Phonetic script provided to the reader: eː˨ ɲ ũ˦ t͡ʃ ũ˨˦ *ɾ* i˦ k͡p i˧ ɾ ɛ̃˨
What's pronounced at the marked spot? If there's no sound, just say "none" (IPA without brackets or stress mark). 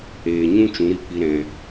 ɾ